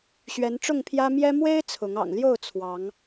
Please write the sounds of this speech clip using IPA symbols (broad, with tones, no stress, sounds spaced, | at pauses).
ɕ ɥ ɛ˨˦ n ʈ͡ʂ ʊ˥˨ ŋ pʰ j ä˦ m j ɛ˦ m w e˦ ɪ̯ t͡sʰ ʊ˨˦ ŋ ɑ̰˨˩ ŋ l j o˥˨ ʊ̯ t͡sʰ w ɑ˨˦ ŋ